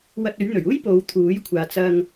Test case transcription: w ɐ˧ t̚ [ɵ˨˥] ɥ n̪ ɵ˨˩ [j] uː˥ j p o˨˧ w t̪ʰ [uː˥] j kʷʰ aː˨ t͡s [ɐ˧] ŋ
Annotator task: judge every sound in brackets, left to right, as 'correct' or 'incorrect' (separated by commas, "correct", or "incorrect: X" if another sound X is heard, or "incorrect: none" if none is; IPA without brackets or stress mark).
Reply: correct, incorrect: ɥ, incorrect: uː˨˥, correct